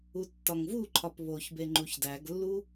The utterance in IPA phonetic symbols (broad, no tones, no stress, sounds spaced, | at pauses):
u tː ɒ ŋ v u ǃʰ ɒ p β o ç b e ŋ͡ǃ u ç d æ ɡ lː u